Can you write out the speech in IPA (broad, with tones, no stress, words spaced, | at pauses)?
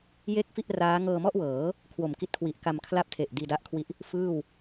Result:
je˥˩k̚fi˥˩ʔ raː˦˥ ŋɤː˧mɔ˥˩ʔwɤː˩˦ | kʰwo˨˩mki˦˥t̚kʰwi˨˩ʔka˧m kʰla˥˩p̚tʰe˨˩ʔ diː˧da˦˥ʔkʰwi˦˥ʔ | fɯː˥˩w